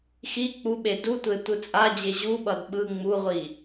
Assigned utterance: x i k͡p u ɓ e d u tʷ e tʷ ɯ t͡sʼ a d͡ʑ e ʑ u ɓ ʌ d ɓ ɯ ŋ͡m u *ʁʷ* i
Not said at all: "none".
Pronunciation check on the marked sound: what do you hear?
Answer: ʁʷ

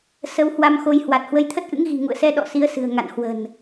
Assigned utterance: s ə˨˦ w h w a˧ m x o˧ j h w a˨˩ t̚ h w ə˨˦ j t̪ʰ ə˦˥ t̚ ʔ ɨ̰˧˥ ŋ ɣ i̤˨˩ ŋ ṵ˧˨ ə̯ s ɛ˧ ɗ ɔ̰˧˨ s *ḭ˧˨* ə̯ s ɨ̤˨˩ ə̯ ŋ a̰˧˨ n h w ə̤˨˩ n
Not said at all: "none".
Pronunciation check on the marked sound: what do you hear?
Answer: i˨˦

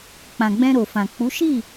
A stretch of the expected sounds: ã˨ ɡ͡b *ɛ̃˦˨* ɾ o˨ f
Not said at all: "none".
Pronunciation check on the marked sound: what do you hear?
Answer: ɛ̃˧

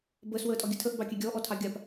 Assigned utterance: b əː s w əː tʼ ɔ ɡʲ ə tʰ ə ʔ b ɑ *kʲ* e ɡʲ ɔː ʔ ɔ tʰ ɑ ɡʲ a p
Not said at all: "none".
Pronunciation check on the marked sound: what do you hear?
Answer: kʲ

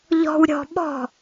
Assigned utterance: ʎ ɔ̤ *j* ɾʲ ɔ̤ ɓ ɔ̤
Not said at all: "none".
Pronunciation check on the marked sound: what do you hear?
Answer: w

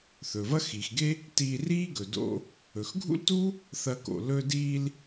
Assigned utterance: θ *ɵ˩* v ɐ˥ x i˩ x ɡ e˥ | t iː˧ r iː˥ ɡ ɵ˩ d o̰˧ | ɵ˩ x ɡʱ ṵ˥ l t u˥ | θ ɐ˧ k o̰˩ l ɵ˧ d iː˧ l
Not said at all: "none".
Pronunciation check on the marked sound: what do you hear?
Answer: ɵ˩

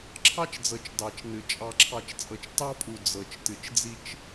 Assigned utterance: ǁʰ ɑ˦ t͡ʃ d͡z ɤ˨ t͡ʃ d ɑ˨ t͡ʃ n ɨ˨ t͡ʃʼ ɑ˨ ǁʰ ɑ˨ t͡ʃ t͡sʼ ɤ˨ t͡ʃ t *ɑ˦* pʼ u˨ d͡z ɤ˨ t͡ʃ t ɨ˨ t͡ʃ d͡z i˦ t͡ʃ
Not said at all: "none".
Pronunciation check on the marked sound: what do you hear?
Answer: ɑ˦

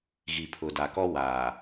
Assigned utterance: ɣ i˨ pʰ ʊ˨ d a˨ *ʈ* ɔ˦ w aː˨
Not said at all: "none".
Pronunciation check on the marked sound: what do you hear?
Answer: k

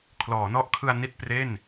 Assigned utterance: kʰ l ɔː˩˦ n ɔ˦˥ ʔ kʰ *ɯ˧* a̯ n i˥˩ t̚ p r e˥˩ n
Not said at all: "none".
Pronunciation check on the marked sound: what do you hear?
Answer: ɯ˧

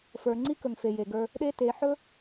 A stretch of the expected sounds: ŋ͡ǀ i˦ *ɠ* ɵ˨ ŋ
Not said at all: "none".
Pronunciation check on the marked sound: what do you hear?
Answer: k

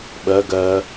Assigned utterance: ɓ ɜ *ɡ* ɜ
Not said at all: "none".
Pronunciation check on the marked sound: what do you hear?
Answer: ɡ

